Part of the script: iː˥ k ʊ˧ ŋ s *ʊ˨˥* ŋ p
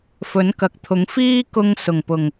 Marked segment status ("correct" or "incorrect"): incorrect